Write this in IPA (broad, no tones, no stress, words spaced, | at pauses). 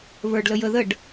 βə˞ɖləjə ðəɖ